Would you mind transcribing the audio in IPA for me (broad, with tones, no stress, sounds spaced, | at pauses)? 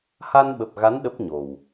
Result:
h a˧ n ɓ ə˨˩ p̚ ɣ a˨˦ n ɗ ə˦˥ p̚ ɲ o˨˩ w